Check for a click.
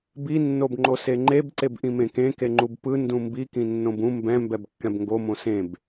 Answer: present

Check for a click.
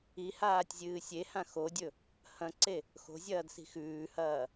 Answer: present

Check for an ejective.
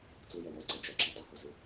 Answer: absent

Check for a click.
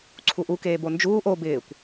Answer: present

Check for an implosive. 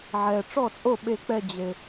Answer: present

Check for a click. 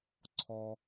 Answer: present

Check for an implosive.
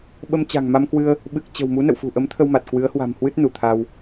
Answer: present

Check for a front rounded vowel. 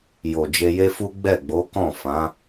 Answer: absent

